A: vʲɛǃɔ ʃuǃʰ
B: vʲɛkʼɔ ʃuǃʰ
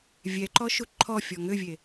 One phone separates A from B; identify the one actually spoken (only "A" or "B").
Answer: A